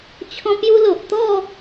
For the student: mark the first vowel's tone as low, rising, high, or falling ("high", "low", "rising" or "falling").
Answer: high